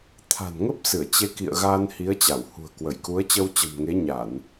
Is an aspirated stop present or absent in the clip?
present